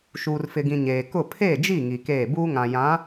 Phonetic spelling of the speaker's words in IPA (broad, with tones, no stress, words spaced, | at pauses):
ʃuː˨rfɪ˨ɡĩ˨ ɲeː˨ kʊ˦˨ pʰeː˦˨d͡ʒi˦˨ ŋi˨keː˦˨ buː˦ŋã˨ jã˨˦